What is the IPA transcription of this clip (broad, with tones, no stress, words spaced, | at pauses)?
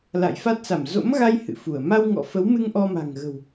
la̰˧˨jfa˦˥t̚sa˧˩m zo̰˧˥mɣa˧j hɨ̰˧˨fu˧˩ə̯ ma˧wŋɔ̰˧˨fə˨˦wmɨ˧ŋ ʔɔ˧ma̤˨˩ŋɣə̤˨˩w